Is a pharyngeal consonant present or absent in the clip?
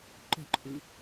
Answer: absent